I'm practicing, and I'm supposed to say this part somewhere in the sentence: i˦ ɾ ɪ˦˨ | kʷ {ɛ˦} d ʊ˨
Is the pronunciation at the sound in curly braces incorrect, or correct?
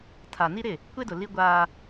incorrect